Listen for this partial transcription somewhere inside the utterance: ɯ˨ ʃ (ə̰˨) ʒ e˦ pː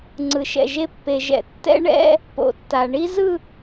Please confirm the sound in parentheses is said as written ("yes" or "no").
no